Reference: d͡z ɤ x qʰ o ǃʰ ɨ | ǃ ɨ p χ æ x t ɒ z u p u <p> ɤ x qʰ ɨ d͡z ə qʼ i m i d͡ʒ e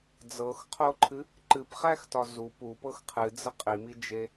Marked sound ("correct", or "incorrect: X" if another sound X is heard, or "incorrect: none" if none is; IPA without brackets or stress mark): correct